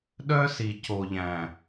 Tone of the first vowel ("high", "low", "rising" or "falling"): high